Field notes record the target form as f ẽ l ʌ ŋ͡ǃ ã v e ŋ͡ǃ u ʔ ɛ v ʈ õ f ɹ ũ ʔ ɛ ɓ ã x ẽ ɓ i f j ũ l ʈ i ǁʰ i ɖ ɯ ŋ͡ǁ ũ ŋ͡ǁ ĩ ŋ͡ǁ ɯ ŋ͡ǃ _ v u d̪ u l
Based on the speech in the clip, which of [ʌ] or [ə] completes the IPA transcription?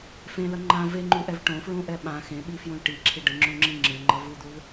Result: ʌ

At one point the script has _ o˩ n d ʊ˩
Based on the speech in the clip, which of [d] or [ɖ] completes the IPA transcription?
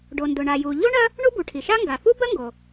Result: ɖ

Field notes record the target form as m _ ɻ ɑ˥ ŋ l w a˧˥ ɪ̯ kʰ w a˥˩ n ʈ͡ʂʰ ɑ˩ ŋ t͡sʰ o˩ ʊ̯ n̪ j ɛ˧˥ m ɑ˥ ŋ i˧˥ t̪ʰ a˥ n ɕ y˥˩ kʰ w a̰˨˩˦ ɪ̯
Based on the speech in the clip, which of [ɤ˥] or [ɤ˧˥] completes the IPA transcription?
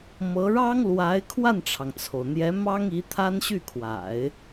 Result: ɤ˧˥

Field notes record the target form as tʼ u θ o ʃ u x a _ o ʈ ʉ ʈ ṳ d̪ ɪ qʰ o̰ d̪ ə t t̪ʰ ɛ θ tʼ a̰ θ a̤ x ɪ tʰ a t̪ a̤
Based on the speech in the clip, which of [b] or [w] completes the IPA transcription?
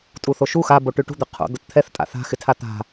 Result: b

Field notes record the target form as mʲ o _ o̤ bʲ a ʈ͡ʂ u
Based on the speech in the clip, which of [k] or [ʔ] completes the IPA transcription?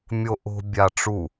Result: ʔ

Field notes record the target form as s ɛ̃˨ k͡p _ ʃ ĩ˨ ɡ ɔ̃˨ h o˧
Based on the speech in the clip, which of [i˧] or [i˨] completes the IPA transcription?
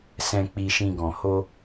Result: i˨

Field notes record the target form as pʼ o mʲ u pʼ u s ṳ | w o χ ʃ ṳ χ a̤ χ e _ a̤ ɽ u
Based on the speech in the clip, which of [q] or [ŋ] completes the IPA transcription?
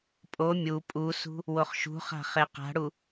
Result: q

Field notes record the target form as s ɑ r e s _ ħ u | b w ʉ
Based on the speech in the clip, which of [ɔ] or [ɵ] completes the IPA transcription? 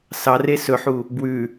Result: ɵ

